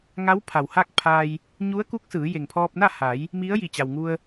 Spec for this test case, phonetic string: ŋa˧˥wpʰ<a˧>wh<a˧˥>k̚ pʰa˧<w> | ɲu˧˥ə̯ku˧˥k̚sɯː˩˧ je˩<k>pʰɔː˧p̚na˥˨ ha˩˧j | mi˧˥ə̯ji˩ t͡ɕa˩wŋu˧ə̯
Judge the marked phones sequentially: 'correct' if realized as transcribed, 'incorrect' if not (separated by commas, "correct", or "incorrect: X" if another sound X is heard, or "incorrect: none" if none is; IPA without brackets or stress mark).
incorrect: a˩, incorrect: a˥˨, incorrect: j, incorrect: ŋ